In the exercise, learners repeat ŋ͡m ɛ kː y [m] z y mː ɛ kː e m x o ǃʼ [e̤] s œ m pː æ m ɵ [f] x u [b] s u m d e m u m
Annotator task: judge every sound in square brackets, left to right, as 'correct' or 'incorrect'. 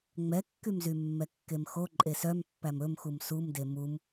correct, incorrect: e, incorrect: m, incorrect: m

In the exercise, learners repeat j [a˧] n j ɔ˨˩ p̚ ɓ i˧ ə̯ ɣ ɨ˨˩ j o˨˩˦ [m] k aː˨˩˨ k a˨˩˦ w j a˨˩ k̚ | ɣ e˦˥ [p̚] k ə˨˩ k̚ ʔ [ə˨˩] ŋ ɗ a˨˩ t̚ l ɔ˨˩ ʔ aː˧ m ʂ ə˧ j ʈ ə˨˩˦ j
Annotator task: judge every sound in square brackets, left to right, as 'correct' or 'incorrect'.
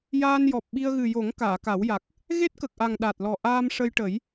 incorrect: aː˧, incorrect: ŋ, incorrect: t̚, incorrect: a˨˩

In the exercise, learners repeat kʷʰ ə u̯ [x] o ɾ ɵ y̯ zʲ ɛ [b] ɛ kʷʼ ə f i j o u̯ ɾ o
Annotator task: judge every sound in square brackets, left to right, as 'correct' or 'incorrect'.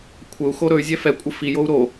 correct, incorrect: f

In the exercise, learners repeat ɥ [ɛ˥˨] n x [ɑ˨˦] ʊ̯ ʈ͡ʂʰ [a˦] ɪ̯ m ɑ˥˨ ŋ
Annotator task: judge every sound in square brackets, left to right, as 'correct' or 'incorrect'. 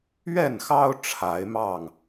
correct, incorrect: ɑ˦, incorrect: a˨˦

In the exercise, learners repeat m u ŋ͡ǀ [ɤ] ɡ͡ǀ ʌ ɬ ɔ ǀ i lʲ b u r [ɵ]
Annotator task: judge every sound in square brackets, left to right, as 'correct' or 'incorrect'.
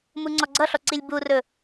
incorrect: ɔ, correct

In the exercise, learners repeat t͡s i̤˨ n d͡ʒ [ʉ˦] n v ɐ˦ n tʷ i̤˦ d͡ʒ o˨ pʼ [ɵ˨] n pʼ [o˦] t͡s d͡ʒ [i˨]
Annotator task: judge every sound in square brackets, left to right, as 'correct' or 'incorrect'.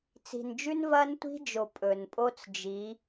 correct, correct, correct, incorrect: i˨˦

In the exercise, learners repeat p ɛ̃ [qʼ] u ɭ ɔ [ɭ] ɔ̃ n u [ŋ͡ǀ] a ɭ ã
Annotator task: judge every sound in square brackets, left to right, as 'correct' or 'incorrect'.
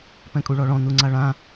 incorrect: kʼ, correct, correct

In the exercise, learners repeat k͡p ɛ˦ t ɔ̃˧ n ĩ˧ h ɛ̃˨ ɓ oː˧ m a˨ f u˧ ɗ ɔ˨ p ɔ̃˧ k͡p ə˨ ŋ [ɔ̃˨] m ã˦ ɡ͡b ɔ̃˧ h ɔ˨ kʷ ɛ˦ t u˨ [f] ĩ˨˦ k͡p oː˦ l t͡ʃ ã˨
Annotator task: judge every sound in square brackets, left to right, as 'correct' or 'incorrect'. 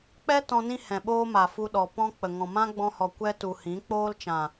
correct, incorrect: h

